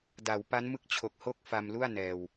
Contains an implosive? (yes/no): no